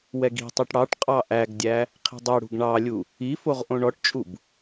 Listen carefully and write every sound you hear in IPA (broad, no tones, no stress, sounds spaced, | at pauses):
w ɛ ɡ i̤ tˤ ø ʈ ɽ ɑ ʈ qʼ ɑ ʔ æ ɡ dʲ æ | qʰ i̤ dˤ ɛ ɽ ṳ ɡ ɳ ɑ lʲ u | i f o ʁ ʔ õ ɳ ɔ ʈ t͡ʃʼ u b